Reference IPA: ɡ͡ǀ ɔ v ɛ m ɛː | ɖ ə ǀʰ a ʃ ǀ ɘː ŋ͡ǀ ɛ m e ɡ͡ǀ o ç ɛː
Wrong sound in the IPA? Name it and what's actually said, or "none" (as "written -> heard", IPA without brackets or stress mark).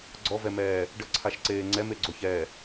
ɘː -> eː